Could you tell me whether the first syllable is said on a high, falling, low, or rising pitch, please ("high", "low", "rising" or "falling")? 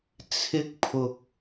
high